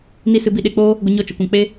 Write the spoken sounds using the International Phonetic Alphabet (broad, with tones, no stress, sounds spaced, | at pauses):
n i˦ s ɨ˧ b i˧ ɗ e˧ k͡p oː˦ | ɡʷ ə˧ ɲ ɔ˦ t͡ʃ ə˨˦ kʷ ã˧ k͡p e˧